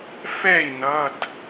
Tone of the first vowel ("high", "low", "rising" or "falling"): falling